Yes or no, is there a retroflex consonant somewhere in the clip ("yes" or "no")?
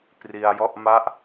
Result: no